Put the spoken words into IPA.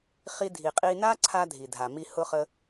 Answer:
χ i˧ dʱ i˨ qʼ i˧ n a˦ ǀʰ a˧ dʱ i˨ dʱ a˨ m i˧ h ʊ˧ χ ə˧

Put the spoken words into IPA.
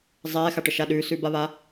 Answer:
zˤ ɛː x a ʈ ə ʃ a ɗ ʉː s ʉ b a β a

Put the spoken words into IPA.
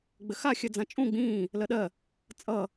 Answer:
ɡ͡b ɘ x a xʲ ɜ d͡z ã t͡ʃʼ ũ ɡ͡b ĩː | l ɜ ɗ ɜ | t͡sʼ ʌ

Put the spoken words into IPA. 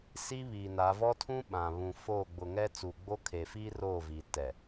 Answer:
s i˦ β i˨ n a˨˦ v ɔ˦ tʰ ũ˦ ɓ ã˨ β ũ˨ f o˦˨ ɡ͡b ʊ˨ ŋ ɛ˦ t͡s uː˨ ɡ͡b o˦ kʰ e˨ f iː˦ r o˦˨ v i˨ t ɛ˨

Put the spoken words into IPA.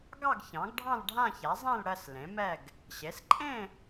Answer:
ɡ ɑ˥˧ ɡ ç ɑ̃˩˥ ɡ ɖʱ ɑ̃˥˧ l ɖʱ ã˥˧ ç a˩˥ zˤ ẽ˥˧ l ɽ ɜ˥˧ s l ẽ˩˥ m ɛ˥˧ ɡ | ɕ e˩˥ s ǃʼ ẽ˥˧

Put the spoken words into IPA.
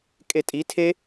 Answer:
kʼ e tʼ i tʰ e

